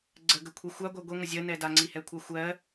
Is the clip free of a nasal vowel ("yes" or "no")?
yes